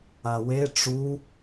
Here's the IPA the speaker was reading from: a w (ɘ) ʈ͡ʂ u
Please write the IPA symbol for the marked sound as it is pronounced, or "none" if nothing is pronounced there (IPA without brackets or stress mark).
e